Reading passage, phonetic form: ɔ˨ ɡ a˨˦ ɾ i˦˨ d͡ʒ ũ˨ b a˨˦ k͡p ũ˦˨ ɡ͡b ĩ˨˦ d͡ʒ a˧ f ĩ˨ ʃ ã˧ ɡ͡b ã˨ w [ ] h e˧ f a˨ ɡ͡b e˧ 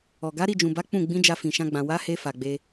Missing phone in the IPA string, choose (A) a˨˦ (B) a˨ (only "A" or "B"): A